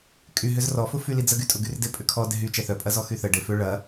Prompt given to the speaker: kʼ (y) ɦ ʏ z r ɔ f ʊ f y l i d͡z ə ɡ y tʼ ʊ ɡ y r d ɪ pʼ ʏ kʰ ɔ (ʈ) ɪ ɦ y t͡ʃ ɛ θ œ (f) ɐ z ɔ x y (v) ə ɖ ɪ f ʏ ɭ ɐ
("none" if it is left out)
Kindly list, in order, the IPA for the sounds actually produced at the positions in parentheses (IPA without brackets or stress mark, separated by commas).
y, d, pʼ, θ